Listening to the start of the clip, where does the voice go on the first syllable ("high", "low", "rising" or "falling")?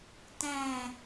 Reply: low